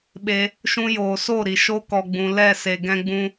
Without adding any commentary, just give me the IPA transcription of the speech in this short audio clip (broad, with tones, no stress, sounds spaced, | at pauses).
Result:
ɓ e˧ | ʃ ũ˧ j oː˨ s o˦˨ ɾ i˨ ʃ o˦ k ɔ˧ ɡ͡b ũ˧ l ɛ˦˨ s e˧ ɡ ɛ̃˦ ɡ͡b ũ˦